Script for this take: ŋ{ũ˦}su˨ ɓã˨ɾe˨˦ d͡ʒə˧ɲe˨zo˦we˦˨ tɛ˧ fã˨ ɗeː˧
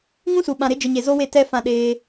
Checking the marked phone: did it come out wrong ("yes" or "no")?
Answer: no